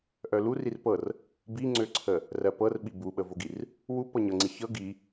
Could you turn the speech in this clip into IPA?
ʔ œ l u r i r p ɤ r | b i ŋ͡ǀ ø ǀʰ ə | r ɜ p ɤ r ɓ i b u ɓ ə v o ɡ i r | w u p ɤ ɲ ɤ ŋ͡ǀ i ç ɤ ɡ i

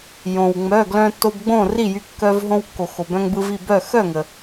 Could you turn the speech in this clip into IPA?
j õ˩ w ŋ͡m œ˩˧˩ ɡ l œ̃˧ tː o˧ b ɡ͡b õ˥˨ r i˥˨ j y˧ kː œ˧ v ɦ õ˧ w kː o˩ x o˩ b œ̃˧ ŋ b ɯ˧ v i˥˨ b œ˥˨ x œ˥˨ ŋ ə˩

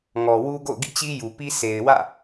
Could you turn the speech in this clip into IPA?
ŋ ɔ˨ w u˦ ɡ o̰˦˨ ʊ̯ ɡ ḭ˦˨ t͡ɕ i˦ j u˨ p i˦ sʰ e˨ ɪ̯ w ä̰˦˨

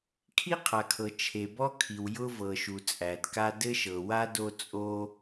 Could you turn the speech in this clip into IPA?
kʰ i˥ qʰ a˩ kʰ ɤ˩ t͡ʃʰ e˩ b ɔ˥ kʰ i˩ w j ʊ˥ v ɤ˩ ʃ u˩ t͡sʼ æ˩ d k a˥ d ɘ˥ ʃ ɤ˩ w a˥ d o˥ t͡sʼ o˥

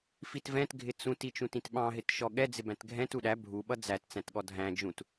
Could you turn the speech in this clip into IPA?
f i t v ɛ̃ t ɡʱ ɪ t͡s ũ t i t͡ʃ ũ t ĩ t ɓ ɑ̃ ɦ ɪ t ʃ ɔ ɠ ɛ d͡z ɪ b æ̃ t ɡʱ ɛ̃ t u ɗ æ bʱ u ɓ ʌ d͡z æ t t͡s æ̃ t ɠ ɔ dʱ æ̃ d͡ʒ ũ t

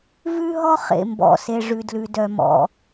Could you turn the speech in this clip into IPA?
v ʉ˥ ɦ ɔ˥ χ ḛ˩ m b ɔ̰˩ s e˩ ʐ ʉ˩ d l ʉ˩ d œ˩ m ɔ̰˩

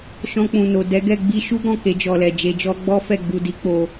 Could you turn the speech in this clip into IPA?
ʃ ɔ̃˧ k͡p ũ˨ n o˨ d ɛ˨˦ ɡ ɛ˦˨ ɡ͡b i˧ ʃ u˦ ɡ ɔ̃˦˨ k e˧ d͡ʒ ɔ˨ l ɛ˨ d͡ʒ e˧ d͡ʒ ɔ˦ ɡ͡b ɔ˦ f ɛ˦˨ ɡ͡b u˧ d i˧ k͡p o˧

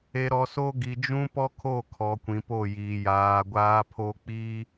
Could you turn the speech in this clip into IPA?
e˨ ɾ ɔ˨ s o˦ ɡ i˨ d͡ʒ ũ˦ p ɔ˦ kʰ o˦˨ kʰ ɔ˨ kʷ ĩ˨ p o˦˨ j iː˨ j aː˨ ɡʷ aː˦ pʰ o˦ k͡p i˦

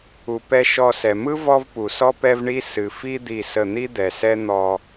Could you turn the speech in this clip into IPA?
u˨ p ɛ˦ ʃ ɔ˦˨ s ɛ˨ m ɯ˦ v ɔ˦ v p u˨ s ɔ˦ p ɛ˦ v ɳ i˦ s ɨ˨ f i˦ d̪ i˦˨ s ə˦˨ n̪ i˦ d̪ ɛ˨ s ɛ˦ n̪ ɔ˦

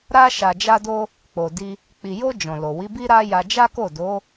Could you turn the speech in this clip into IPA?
ɾ a˧ ʃ a˨ d͡ʒ a˧ d o˧ | k͡p o˨ d i˧ | k͡p i˨ j o˧ d͡ʒ ɔ̃˨ l o˨ w i˨˦ b i˦ ɾ a˦ j a˧ d͡ʒ a˦ k o˦˨ d o˨˦

